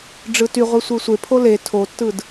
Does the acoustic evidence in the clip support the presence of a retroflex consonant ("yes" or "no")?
yes